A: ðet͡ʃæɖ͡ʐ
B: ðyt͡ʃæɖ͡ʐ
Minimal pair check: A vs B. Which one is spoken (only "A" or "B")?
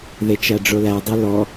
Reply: A